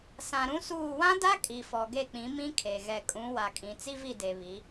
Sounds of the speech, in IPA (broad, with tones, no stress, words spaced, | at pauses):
sã˨ɾũ˦suː˦˨ wã˦da˦ kʼi˨fɔ˨ɡe˦˨k͡pĩ˨˦ mĩ˦kʰe˨ ɣɛ˨kʼũ˨˦wa˨kʼĩ˨ t͡si˦vi˦˨de˨βi˨˦